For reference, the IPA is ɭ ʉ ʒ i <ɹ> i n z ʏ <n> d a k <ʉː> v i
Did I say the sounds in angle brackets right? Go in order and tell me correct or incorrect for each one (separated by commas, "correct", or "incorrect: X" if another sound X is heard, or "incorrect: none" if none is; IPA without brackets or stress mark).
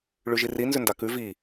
incorrect: r, correct, incorrect: ʉ